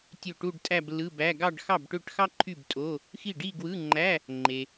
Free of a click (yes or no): no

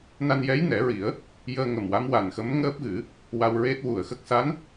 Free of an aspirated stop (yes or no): yes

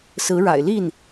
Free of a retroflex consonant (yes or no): no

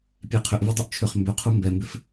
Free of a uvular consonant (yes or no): no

